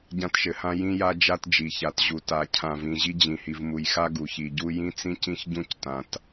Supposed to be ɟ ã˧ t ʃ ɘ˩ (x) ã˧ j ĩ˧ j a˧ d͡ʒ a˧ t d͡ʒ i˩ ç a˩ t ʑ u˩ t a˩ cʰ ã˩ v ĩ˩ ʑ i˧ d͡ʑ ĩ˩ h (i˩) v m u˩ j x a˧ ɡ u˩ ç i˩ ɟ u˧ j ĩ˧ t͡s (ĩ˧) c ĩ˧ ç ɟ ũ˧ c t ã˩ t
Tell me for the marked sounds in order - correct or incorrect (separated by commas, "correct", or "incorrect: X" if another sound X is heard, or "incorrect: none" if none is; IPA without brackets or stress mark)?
incorrect: h, correct, correct